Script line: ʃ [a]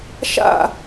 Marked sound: incorrect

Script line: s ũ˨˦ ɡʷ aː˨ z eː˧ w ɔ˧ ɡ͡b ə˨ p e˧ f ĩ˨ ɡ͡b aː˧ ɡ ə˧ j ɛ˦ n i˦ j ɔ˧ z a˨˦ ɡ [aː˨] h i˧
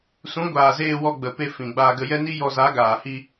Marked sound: correct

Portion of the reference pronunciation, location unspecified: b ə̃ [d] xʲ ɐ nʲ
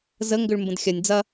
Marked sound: correct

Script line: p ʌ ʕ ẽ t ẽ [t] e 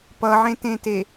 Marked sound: correct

